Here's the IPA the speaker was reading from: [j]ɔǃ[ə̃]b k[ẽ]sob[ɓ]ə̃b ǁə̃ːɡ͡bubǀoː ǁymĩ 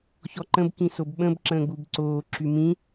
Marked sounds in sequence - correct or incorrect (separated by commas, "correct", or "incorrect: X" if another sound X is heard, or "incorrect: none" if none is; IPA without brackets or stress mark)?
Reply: incorrect: ç, correct, incorrect: ĩ, correct